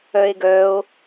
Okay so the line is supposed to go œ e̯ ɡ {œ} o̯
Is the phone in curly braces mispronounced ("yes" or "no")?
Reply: no